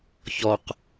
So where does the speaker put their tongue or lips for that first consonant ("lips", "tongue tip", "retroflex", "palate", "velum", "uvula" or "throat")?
palate